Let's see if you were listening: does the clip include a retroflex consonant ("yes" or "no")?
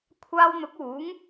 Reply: no